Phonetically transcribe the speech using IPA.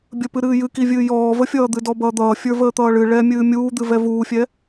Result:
bʲ ə p ɨ ɾ ɨː j ɨ k i vʲ ɨː j ɔː v ə fʲ ʌː d̪ ɨ d ɔ b ʌː d̪ ʌː fʲ ə˞ v əː t̪ ʌː ɭ ɨ ɭ ɛ mʲ ɨː mʲ uː d̪ ɨ v ɛ v uː fʲ ɛ

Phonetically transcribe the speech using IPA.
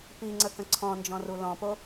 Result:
p i ŋ͡ǀ ə k ə̃ ǀʰ ɔ̃ n d͡ʒ ɔ̃ r u l ɔ̃ p o

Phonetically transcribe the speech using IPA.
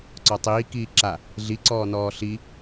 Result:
ǀ ɔ tˤ iː k iː ǁ a | ɮ i ǀ ɔː n ɔː ɬ i

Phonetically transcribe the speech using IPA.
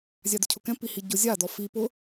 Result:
zʲ a d ʊ cʰ ʊ k ɛ̃ p i h i ɟ ʊ zʲ a d ɔ f i p ʊ

